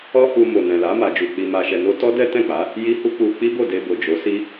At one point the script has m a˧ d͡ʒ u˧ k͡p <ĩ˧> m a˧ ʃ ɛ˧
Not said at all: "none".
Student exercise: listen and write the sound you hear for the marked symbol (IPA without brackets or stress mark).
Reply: i˧